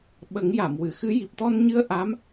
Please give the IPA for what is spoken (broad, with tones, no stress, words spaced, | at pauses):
ɓə˨˩˦ŋja˨˩˨mwɨ˨˩˨xɨ˧˥ ji˨˩p̚t̪ɔ˧nɲɨ˧ə̯ ʔa˧˥m